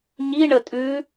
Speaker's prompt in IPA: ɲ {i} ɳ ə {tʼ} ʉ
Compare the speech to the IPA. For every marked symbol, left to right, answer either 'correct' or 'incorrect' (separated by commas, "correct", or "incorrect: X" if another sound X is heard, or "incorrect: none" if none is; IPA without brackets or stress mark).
correct, correct